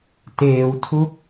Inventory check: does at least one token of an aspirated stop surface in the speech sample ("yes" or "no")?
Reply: yes